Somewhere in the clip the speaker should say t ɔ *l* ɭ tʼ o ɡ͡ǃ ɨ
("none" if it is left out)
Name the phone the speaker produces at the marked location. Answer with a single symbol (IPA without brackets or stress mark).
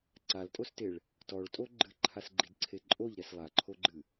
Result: none